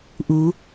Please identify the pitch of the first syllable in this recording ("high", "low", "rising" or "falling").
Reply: rising